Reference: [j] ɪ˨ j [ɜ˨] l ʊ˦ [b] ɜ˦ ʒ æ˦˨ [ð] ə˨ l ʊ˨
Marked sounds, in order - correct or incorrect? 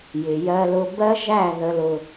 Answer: correct, incorrect, correct, correct

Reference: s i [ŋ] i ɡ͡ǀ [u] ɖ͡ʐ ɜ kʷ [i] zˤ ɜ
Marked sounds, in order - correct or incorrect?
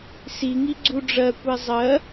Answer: correct, correct, incorrect

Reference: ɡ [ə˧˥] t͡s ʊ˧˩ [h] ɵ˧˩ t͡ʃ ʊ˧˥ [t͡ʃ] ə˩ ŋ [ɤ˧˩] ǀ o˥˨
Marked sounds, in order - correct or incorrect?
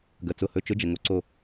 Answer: incorrect, correct, incorrect, incorrect

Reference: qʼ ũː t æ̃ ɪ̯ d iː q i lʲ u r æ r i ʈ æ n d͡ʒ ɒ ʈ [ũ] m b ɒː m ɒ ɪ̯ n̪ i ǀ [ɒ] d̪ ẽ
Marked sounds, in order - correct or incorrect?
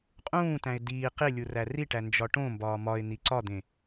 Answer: incorrect, correct

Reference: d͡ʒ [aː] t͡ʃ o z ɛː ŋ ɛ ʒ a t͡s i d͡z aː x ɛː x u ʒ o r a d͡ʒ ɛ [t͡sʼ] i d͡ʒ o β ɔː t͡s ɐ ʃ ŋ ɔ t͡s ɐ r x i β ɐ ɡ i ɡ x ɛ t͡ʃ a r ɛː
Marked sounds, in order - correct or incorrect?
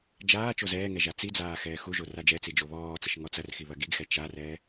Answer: correct, incorrect

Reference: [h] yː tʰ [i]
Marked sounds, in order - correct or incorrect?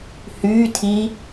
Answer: correct, correct

